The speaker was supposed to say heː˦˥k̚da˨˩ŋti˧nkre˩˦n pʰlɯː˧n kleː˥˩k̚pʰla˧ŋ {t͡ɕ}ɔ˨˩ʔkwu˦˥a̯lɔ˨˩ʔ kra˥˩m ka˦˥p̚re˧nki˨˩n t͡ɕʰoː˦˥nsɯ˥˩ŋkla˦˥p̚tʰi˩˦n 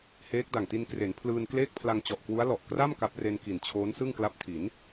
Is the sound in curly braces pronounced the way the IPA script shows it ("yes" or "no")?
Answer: yes